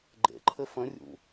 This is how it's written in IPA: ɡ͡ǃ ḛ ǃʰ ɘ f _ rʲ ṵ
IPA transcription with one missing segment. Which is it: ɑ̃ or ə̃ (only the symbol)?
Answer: ə̃